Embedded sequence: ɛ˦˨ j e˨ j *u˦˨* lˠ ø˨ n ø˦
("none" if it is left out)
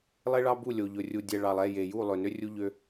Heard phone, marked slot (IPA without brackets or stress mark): u˦˨